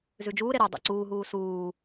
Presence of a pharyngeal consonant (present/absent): absent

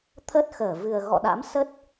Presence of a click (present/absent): absent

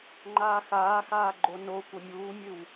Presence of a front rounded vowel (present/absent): absent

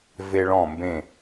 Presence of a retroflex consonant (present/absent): present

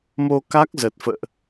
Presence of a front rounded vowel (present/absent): absent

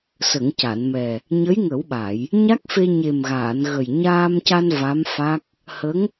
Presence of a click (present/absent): absent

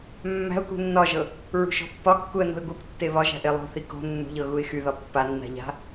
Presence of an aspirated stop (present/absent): absent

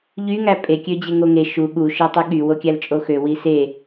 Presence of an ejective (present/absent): present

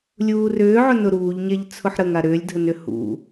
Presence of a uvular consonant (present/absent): absent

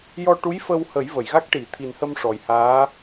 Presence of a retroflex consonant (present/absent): present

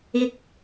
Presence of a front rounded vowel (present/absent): absent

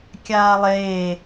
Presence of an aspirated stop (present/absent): absent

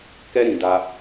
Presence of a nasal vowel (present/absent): present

